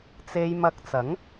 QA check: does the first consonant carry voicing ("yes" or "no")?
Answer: no